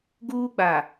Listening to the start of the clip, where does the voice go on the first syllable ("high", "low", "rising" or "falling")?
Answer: high